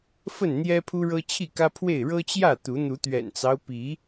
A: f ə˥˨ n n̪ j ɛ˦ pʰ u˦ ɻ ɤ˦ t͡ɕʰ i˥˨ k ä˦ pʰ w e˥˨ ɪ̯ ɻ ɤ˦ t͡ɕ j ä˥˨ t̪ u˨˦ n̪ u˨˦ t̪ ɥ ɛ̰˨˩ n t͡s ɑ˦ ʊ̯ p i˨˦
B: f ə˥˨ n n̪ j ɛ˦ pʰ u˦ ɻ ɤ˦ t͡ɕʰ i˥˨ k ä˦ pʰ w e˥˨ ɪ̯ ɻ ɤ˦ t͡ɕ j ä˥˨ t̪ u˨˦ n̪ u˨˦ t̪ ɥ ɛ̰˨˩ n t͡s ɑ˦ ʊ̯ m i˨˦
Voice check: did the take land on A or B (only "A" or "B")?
A